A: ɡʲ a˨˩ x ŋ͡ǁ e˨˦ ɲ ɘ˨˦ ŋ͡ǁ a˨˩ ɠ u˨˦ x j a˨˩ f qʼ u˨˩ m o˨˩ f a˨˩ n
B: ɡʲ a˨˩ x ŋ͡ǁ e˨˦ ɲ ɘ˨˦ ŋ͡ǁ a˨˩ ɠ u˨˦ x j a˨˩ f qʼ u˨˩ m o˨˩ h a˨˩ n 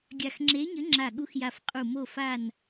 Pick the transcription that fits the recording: A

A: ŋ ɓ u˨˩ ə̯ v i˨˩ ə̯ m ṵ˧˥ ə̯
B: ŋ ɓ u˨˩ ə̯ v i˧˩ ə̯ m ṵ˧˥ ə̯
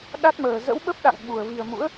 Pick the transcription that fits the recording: A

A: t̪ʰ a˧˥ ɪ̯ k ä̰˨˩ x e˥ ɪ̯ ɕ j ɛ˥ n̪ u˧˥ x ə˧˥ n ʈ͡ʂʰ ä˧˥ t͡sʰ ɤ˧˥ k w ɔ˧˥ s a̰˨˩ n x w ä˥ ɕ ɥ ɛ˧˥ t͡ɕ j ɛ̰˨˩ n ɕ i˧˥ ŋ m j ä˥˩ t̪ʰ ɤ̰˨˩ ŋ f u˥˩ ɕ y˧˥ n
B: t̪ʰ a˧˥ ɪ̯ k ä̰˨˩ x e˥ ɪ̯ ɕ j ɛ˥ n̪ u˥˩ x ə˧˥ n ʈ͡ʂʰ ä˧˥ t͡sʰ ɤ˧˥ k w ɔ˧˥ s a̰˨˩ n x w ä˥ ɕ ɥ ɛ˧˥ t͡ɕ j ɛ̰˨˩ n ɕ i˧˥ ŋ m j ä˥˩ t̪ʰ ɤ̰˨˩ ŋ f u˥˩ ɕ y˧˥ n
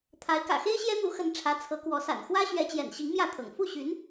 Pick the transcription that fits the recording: A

